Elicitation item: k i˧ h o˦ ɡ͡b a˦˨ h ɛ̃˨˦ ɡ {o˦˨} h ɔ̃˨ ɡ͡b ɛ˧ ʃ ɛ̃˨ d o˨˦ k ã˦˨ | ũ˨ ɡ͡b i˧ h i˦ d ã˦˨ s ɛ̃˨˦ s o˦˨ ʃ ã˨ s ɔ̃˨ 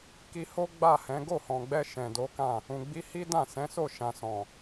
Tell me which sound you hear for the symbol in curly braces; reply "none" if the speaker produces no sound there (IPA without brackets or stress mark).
o˦˨